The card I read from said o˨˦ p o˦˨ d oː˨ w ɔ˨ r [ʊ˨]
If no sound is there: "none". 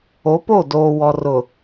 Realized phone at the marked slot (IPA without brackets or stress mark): ʊ˨